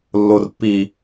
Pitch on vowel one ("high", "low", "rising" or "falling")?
low